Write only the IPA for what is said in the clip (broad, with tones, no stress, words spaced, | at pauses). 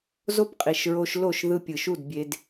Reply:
zo˦pqʼi˨ʃɹo˧ʃ lo˦˨ʃðɯ˧ pʲɯ˨ʃu˦˨dbʲe˧d